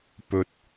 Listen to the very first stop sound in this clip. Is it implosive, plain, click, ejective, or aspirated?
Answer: plain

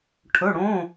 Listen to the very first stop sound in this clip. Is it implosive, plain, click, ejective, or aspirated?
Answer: aspirated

